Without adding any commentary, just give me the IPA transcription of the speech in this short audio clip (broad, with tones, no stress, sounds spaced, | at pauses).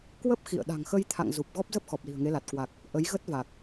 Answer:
k w ə˦˥ p̚ x ḭ˧˨ ə̯ ɗ a̤˨˩ ŋ x ə˧ j t̪ʰ a̰˧˨ ŋ z u˨˩ p̚ ɣ ɔ˦˥ p̚ z ə˦˥ p̚ x ɔ˨˩ p̚ l i̤˨˩ ə̯ ŋ e˨˦ l a˨˩ t̚ k w a˨˩ k̚ | ʔ ə˨˦ j ɣ ə˦˥ t̚ v a˨˩ k̚